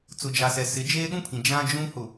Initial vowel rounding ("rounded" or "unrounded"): rounded